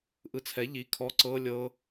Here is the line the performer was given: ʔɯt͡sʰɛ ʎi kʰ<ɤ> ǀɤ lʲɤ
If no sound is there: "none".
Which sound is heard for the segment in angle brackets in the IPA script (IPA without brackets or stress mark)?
ɔ